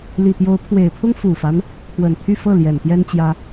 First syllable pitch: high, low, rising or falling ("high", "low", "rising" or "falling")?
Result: low